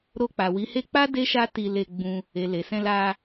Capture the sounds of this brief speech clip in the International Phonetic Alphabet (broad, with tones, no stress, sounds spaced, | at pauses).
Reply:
ɾ o˧ k͡p a˨ w i˨˦ h e˦ k͡p a˦ d e˦ ʃ a˦ t i˧ l e˧ ɡ͡b ũ˧ | e˨ l e˨ s ɛ̃˧ l a˧